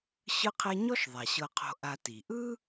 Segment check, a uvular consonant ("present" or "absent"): present